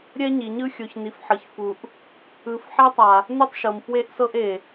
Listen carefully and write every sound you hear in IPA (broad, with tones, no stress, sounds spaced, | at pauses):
ɾʲ ɛ˦ ɲ i˨ ɲ ɯ˦ xʲ o˨ ç n i˨ f ħ ɤ˨ ç f u˨ ʔ | ɯ˨˦ f ħ ɛ˦ tˤ a˨ | n ɯ˦ tˤ ʃ ɤ˨ m f w e˦ ʔ s ɤ˦ ʔ e˨